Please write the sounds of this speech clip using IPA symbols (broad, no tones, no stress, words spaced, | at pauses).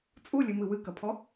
t͡sʼulʲɨmɨ wɨkɐpʰɔ